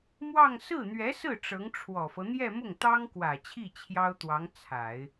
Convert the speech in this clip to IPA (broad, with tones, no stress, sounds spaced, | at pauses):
m w ɑ˥˧ ŋ s ɹ̩˥˩ n̪ ɥ ɛ˧˥ s ɹ̩˥˩ ʈ͡ʂ ɤ˧˥ ŋ ʈ͡ʂʰ w ɔ˨˩ f ɤ˦ n̪ j ɛ˥˧ m ʊ˥˩ ŋ t̪ ɑ˥ ŋ k w ä˨˩ t͡ɕʰ i˥˩ t͡ɕʰ j ɑ˥ ʊ̯ t̪ w ɑ˧˥ ŋ t͡sʰ a˨˩˦ ɪ̯